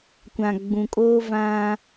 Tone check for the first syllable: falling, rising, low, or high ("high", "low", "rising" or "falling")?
low